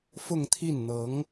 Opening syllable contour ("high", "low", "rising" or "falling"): falling